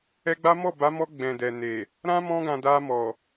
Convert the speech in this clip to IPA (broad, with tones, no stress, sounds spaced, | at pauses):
ɛ˧ ɡ͡b a˦ m ɔ˦˨ b a˨˦ m ɔ˧ ɡ͡b ɛ̃˨ d ɛ˨ n e˨ | ɾ ã˦ m ɔ̃˧ ɡ ã˨ d a˧ m ɔ˨